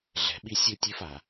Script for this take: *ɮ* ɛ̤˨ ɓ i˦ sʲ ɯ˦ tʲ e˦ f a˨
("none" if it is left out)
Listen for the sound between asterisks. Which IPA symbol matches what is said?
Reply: ɮ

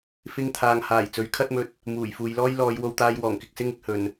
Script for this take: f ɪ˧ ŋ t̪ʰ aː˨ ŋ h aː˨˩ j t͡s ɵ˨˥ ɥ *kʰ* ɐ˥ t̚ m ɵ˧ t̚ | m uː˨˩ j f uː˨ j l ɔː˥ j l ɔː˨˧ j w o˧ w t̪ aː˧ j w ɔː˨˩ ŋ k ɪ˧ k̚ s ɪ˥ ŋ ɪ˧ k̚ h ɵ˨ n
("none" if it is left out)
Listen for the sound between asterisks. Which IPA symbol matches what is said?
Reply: kʰ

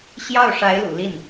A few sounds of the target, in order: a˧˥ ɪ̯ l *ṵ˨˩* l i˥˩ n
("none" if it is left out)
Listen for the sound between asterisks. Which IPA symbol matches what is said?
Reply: ṵ˨˩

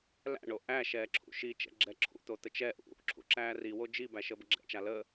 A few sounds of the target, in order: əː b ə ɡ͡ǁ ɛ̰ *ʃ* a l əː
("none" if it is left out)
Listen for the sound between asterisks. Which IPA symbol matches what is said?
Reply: t͡ʃ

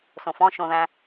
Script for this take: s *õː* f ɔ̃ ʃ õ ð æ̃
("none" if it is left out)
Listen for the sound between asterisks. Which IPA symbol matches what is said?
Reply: õ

